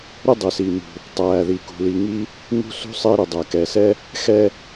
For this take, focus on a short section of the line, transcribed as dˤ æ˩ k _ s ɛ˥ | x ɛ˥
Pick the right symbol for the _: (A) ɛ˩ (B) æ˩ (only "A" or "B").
A